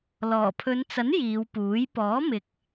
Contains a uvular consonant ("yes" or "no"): no